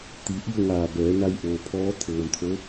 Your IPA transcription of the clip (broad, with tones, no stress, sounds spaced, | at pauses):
t̪ i˩˧ ʔ i˥˨ ə̯ ŋ aː˧˩ b ɛː˩˧ n a˧ j ʔ oː˩ pʰ ɔː˧˥ t̪ʰ ɤː˩ m t̪ʰ o˧˥